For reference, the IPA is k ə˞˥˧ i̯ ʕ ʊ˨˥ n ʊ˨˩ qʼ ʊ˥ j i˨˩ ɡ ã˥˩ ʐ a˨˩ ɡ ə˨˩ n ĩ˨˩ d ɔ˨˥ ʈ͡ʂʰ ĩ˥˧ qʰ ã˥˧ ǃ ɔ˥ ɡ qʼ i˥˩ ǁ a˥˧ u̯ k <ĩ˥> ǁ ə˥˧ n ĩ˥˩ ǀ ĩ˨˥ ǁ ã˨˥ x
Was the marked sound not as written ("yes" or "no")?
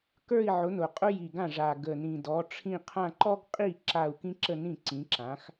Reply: no